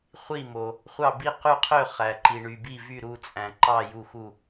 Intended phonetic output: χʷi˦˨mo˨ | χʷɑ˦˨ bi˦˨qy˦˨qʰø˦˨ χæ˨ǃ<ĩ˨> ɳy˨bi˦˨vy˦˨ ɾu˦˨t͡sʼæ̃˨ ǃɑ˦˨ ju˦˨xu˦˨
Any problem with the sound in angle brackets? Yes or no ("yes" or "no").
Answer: yes